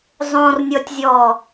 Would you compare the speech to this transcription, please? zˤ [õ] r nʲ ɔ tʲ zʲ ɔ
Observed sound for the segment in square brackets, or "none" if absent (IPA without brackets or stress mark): õ